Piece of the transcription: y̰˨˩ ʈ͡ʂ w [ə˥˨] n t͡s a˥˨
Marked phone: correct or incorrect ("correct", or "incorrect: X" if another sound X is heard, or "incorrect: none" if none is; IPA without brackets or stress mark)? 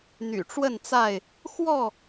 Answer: correct